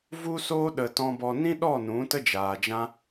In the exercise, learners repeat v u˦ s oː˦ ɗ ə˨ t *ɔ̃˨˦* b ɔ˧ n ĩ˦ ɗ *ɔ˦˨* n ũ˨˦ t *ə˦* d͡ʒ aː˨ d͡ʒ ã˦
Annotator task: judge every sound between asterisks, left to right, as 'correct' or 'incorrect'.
incorrect: ɔ̃˧, correct, correct

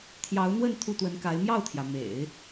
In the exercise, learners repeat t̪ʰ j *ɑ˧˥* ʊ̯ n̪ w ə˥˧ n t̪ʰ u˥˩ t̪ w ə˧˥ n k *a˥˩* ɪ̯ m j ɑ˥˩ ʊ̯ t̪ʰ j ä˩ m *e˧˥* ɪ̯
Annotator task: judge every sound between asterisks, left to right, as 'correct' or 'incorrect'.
correct, incorrect: a˧˥, incorrect: ḛ˨˩˦

